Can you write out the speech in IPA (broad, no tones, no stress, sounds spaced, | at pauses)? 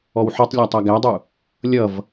ɔ w ħ ɔ tˤ lʲ æ tˤ æ ɡ æ dˤ u | lʲ ʌ v